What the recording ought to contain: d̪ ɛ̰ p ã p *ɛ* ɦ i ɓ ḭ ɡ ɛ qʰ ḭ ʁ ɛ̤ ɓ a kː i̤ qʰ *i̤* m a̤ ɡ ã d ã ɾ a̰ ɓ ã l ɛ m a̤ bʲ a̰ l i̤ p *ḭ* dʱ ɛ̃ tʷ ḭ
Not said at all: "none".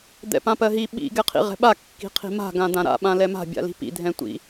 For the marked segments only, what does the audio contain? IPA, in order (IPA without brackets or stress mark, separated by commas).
ɜ, i̤, ḭ